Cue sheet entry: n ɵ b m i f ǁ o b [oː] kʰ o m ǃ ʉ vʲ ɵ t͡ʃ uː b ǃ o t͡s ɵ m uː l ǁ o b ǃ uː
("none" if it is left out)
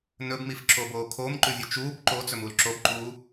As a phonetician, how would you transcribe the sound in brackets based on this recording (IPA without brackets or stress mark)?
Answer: oː